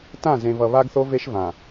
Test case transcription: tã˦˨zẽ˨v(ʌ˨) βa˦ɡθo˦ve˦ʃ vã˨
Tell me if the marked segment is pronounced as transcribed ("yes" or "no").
yes